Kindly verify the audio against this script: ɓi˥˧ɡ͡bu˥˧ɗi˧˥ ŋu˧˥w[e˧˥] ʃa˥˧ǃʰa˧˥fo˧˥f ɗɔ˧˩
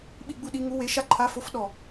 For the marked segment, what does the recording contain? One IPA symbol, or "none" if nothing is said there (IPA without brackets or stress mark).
e˧˥